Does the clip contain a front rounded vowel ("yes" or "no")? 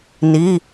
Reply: no